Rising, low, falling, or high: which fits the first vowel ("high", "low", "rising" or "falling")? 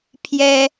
high